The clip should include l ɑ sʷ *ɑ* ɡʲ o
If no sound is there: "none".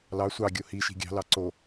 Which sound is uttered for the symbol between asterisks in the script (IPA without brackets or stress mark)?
ɑ